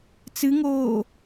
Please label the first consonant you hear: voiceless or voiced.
voiceless